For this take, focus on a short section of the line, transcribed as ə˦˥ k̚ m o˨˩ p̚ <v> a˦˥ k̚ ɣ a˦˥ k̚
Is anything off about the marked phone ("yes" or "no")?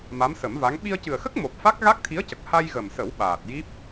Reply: yes